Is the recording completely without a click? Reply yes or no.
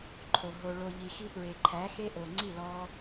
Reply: no